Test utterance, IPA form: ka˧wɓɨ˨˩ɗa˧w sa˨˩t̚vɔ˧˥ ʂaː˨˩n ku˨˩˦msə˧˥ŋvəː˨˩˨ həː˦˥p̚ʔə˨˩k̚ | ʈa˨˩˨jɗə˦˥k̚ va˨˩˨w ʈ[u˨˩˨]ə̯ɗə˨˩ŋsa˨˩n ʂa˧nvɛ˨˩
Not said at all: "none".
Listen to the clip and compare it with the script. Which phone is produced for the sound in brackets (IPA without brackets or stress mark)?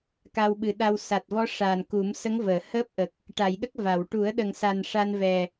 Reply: u˨˩˦